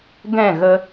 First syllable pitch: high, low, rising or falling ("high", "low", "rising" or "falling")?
falling